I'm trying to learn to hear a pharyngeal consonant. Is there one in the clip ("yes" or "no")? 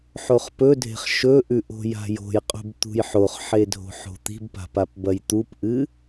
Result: yes